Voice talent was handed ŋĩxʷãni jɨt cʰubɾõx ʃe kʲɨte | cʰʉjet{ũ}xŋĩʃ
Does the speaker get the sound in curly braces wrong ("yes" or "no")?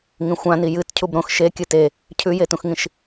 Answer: no